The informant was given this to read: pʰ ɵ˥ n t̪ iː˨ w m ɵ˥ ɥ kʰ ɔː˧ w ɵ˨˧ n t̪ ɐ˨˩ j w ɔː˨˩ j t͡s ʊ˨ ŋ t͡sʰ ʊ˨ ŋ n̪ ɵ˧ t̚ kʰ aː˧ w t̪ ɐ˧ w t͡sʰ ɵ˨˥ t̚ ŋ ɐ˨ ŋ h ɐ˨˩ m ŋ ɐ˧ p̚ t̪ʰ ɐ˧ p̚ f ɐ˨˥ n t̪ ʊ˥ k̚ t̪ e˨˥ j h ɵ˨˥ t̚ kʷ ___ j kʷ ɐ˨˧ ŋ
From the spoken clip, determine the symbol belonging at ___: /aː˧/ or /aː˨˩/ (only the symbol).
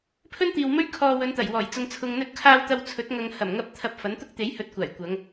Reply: aː˨˩